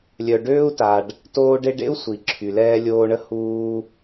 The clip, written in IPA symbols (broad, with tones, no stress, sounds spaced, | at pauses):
lʲ œ˨ ɖ øː˥ u̯ t a˨ ɖ | t oː˦ ɖ e˦ ɖ ḛ˥ u̯ sʷ i˩ ǁʰ y˩ l ɛː˦ lʲ oː˦ ɳ ə˥ h uː˦